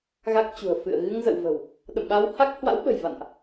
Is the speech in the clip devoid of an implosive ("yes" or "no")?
no